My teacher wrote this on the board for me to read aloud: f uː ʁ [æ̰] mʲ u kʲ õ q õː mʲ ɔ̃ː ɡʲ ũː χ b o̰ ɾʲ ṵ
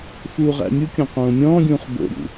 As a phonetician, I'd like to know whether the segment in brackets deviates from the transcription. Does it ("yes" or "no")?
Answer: no